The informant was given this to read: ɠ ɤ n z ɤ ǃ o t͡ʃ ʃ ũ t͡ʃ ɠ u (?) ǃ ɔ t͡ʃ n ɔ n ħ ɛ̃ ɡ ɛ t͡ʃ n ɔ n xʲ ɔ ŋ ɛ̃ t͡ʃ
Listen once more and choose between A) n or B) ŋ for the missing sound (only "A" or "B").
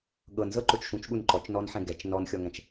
A